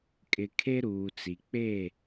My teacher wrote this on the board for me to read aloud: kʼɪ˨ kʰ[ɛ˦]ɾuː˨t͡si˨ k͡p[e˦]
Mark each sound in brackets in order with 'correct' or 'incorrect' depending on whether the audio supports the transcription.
incorrect, incorrect

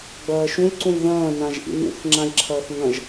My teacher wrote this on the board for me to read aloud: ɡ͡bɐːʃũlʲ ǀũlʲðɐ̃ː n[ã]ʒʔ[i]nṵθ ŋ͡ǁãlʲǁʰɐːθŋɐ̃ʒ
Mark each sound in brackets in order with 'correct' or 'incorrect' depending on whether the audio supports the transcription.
correct, incorrect

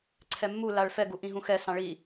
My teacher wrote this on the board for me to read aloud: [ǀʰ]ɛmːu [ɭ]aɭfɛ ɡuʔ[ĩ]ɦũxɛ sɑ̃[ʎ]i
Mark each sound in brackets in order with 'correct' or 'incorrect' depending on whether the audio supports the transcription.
correct, incorrect, correct, incorrect

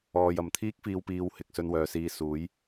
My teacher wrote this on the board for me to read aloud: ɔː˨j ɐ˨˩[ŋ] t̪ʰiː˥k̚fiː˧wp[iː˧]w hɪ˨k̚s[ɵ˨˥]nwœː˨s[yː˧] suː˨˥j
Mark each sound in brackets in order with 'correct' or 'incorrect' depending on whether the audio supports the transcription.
incorrect, correct, incorrect, incorrect

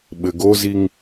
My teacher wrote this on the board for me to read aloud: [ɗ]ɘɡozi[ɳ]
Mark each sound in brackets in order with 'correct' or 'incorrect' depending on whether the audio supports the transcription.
incorrect, incorrect

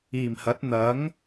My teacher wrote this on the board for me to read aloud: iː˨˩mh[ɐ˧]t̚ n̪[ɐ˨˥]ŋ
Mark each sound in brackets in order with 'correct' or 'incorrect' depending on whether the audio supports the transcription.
incorrect, correct

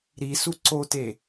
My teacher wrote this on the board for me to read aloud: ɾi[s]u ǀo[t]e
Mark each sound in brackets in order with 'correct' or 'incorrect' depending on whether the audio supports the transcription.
correct, correct

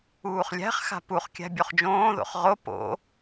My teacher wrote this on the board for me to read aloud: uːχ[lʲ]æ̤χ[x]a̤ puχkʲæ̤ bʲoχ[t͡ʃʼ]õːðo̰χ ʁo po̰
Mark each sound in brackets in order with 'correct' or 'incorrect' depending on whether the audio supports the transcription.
correct, correct, incorrect

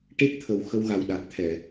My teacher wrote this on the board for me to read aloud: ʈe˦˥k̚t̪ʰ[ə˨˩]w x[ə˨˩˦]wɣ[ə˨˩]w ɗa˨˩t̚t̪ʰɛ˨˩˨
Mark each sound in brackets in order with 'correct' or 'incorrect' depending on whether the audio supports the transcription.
correct, incorrect, incorrect

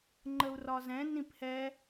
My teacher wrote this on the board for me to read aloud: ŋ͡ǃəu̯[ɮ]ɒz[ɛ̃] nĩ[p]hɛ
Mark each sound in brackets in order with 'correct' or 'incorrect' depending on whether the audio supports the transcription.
incorrect, correct, correct

